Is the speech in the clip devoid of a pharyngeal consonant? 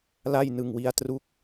yes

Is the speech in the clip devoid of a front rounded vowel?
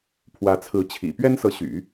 no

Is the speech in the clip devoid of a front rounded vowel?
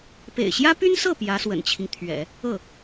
no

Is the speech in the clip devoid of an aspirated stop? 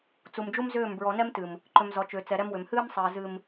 yes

